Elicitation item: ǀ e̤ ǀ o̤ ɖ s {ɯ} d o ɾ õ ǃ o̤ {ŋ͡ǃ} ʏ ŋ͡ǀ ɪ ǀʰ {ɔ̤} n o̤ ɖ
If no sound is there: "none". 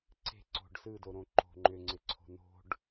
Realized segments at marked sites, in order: ɯ, ŋ͡ǃ, o̤

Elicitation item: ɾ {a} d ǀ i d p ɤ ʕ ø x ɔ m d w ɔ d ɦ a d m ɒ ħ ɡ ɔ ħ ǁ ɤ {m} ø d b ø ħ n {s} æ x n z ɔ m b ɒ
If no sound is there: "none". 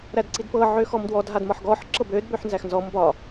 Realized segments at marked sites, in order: æ, b, z

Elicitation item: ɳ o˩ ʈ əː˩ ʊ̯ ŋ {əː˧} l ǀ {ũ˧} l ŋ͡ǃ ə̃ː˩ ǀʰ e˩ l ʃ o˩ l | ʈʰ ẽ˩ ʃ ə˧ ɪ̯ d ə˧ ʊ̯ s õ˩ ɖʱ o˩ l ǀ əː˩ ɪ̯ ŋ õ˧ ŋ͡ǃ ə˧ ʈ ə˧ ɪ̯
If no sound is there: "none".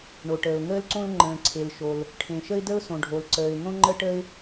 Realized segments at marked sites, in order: əː˧, õ˧

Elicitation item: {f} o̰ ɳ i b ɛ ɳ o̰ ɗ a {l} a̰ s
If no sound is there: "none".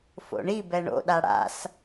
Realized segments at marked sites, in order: f, ɽ

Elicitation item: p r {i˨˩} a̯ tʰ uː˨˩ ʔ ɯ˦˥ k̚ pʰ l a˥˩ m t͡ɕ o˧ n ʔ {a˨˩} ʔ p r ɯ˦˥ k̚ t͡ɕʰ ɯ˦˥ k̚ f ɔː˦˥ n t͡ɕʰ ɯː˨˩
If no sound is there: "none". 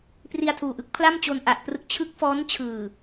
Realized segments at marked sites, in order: i˧, a˨˩

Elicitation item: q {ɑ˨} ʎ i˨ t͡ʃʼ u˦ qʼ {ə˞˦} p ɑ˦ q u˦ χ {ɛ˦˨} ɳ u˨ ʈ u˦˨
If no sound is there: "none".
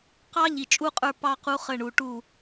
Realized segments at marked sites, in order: ɑ˦, ə˞˦, ə˦˨

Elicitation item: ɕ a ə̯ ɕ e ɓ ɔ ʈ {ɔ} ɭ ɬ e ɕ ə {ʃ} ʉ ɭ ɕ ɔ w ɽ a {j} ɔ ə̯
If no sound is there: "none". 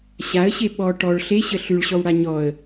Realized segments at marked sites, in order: ɔ, ɬ, ɲ

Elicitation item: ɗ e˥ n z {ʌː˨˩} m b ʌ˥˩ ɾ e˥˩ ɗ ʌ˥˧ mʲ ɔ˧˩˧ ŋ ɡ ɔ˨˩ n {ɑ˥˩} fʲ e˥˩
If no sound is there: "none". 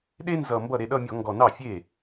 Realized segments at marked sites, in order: ʌ˨˩, ɑ˥˩

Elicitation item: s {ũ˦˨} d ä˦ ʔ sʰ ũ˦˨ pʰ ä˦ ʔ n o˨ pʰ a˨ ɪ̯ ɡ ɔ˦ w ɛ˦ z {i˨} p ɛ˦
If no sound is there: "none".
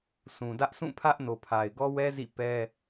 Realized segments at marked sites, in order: ũ˨, ḭ˦˨

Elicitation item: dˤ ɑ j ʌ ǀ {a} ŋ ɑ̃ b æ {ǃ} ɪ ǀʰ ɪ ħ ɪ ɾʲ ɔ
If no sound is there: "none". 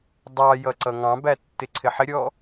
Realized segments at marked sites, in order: ʌ, tː

